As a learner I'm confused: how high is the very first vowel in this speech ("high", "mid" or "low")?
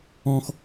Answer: mid